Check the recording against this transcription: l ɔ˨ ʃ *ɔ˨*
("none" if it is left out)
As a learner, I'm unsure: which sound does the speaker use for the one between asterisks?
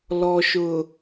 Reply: ʊ˨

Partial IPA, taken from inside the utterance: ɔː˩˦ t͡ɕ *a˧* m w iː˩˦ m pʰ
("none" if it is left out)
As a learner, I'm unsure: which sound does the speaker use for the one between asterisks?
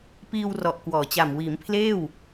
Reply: a˨˩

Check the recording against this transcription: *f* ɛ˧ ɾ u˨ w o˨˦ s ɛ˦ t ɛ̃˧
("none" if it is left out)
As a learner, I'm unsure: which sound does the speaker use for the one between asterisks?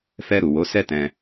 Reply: f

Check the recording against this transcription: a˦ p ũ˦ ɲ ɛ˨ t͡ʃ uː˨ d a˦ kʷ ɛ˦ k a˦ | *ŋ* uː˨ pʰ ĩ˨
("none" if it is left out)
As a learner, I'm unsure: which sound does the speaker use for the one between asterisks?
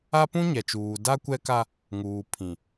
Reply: ŋ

